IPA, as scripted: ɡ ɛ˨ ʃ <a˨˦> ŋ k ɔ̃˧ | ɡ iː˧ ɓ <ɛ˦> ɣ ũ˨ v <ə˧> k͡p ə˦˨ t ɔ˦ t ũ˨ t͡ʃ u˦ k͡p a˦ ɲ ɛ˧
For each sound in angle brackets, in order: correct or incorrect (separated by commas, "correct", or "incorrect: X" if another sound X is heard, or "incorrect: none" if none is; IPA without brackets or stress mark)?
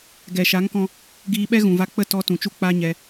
correct, correct, incorrect: a˧